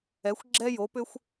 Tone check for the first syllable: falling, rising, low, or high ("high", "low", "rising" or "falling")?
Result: rising